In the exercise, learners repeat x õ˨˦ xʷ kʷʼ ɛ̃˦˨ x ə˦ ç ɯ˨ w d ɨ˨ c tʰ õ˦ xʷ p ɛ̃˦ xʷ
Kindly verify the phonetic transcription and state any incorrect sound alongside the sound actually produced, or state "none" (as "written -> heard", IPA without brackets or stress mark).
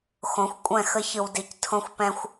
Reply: ɨ˨ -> i˨